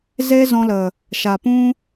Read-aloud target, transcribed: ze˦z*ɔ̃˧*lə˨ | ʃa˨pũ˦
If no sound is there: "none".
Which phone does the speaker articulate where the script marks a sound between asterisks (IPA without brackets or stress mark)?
ɔ̃˧